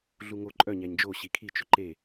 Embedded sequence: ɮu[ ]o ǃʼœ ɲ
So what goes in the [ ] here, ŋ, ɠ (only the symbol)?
ŋ